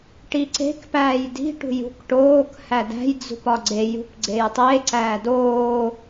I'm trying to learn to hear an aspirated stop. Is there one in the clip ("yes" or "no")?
no